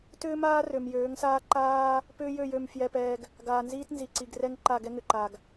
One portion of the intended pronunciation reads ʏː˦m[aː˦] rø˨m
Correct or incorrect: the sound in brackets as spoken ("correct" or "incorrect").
correct